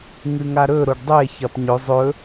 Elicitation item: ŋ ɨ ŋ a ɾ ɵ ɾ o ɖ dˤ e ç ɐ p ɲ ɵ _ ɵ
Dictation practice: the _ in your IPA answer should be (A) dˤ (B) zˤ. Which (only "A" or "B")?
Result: B